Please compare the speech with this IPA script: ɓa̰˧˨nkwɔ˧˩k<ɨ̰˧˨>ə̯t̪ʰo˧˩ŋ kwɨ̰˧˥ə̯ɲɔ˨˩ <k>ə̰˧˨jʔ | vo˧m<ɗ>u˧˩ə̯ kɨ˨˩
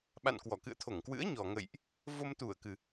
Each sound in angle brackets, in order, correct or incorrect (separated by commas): correct, incorrect, incorrect